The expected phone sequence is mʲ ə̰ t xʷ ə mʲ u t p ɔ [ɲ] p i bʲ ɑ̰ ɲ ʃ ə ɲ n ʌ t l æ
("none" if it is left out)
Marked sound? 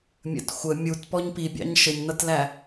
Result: ɲ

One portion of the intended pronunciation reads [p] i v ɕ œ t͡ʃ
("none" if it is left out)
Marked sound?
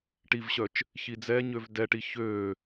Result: ʈ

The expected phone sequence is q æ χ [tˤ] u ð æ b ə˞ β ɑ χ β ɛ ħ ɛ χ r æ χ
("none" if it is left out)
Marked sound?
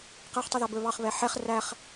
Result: tˤ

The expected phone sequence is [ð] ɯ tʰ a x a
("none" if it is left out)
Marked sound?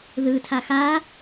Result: ð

